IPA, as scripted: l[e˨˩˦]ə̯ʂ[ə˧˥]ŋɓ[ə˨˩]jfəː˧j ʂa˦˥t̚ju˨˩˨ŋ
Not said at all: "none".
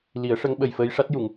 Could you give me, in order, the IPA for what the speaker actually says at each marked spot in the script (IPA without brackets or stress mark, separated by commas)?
i˨˩˦, ə˧˥, ə˨˩